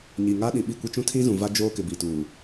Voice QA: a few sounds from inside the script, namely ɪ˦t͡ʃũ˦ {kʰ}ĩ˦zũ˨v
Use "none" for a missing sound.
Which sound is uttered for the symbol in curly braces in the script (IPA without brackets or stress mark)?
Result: tʰ